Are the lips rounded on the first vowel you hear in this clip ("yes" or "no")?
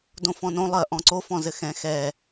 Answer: yes